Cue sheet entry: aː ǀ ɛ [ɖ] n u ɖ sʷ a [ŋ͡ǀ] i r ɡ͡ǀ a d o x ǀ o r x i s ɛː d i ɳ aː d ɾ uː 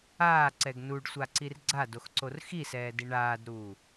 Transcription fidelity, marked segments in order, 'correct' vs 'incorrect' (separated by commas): incorrect, incorrect